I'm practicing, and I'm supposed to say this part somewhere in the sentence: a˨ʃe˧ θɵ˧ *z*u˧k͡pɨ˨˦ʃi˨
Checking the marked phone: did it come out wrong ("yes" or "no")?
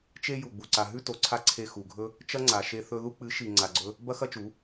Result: yes